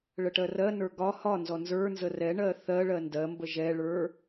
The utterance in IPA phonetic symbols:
ɭ ə ʈ ɜ r ɜ n ə˞ ɡ ɒ h ɒ n z ɔ n z ə˞ n z ə r ɛ ɳ ɜ θ ɜ ɭ ɜ n d ɜ m b ə ʒ ɛ ɭ ə˞

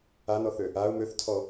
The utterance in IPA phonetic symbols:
a n ɔ θ ø | a ʊ̯ m ø θ tʰ ɔ

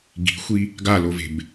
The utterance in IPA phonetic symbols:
ɡ i̤ xʷ i | ɡ a l o v e̤ b

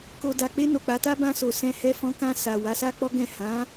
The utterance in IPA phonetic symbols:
k o˨ d a˨ k͡p e˧ n o˨ k͡p a˨˦ t a˦ b ã˧ s o˨ s ɛ̃˧ h ɛ˧ f ɔ̃˧ k ã˧ s a˨ w a˨˦ s a˦ k͡p ɔ˦ ɡ ɛ̃˦˨ h ã˨˦

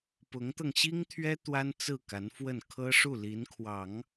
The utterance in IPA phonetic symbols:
p ʊ˧˥ ŋ t̪ ɤ˧ ŋ ɕ i˥ ŋ t̪ʰ ɥ ɛ˥ t̪ w a˥ n t͡s ɹ̩˥˩ k a˧˥ n f w ə˥˩ n kʰ ɤ˥ ʂ u˥˩ l i˧˥ n kʰ w ɑ˨˩˦ ŋ

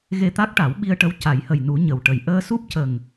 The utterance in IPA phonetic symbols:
ɣ e˧ t̪ a˦˥ k̚ ʈ a˨˩˦ w ɓ i˧ ə̯ ʈ ə˧˥ w c a˨˩˦ j h ə˨˩ j n u˨˩˦ ɲ ə˨˩ w ʈ ə˨˩ j ʔ əː˧ s u˦˥ p̚ c ə˨˩ ŋ

